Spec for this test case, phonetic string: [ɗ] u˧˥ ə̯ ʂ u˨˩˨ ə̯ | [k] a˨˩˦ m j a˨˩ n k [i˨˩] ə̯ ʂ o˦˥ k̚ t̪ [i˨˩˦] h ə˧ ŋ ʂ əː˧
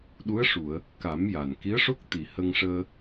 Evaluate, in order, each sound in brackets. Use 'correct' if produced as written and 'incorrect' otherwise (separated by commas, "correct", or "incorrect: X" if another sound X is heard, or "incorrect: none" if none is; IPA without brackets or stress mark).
correct, correct, incorrect: i˧˥, incorrect: i˨˩